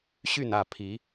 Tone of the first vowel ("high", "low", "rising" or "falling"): falling